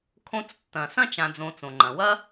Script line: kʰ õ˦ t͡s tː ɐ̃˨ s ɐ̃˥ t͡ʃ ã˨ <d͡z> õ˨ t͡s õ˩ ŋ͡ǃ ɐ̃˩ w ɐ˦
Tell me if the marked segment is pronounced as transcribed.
yes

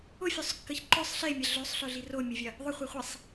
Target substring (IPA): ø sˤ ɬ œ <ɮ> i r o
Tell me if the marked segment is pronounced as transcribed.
yes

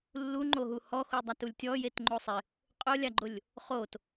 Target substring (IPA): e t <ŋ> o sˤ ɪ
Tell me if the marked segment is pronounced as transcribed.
no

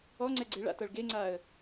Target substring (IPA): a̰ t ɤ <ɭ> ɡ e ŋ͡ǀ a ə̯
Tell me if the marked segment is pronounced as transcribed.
yes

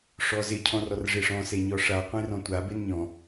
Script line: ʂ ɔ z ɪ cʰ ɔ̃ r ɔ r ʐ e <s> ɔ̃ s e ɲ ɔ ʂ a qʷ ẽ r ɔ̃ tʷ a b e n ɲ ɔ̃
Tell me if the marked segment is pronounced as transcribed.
no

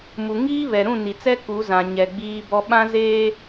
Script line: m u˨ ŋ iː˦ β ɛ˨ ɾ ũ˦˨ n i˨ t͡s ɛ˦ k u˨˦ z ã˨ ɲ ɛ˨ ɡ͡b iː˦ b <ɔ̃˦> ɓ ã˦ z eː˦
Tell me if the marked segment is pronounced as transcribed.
no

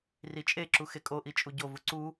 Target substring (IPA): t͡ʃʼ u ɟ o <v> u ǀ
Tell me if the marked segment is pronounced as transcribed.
yes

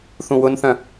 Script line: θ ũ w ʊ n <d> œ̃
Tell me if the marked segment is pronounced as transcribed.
no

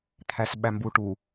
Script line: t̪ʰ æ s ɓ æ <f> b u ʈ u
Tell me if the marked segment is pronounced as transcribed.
no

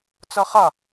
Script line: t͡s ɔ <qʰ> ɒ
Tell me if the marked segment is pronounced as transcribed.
no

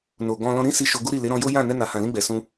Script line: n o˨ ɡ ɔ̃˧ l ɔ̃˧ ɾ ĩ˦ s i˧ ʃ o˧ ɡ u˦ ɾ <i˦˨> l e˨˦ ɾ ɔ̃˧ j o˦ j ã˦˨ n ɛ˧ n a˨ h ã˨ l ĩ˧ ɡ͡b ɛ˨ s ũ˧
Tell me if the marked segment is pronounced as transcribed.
yes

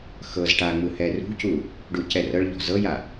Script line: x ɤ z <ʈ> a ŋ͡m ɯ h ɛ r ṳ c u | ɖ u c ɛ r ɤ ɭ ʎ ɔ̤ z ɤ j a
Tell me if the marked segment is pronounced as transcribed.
yes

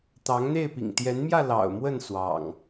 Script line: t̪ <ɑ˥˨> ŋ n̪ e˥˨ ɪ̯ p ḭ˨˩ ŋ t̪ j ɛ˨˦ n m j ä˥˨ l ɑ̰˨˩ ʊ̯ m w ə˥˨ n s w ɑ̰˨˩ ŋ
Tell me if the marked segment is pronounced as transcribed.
no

